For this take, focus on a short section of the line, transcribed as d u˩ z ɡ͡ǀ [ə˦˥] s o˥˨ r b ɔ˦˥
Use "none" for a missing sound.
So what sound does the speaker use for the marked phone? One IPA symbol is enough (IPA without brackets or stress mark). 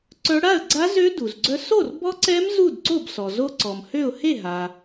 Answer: œ˦˥